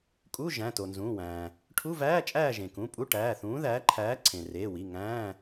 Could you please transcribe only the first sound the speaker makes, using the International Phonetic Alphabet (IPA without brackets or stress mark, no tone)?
kʼ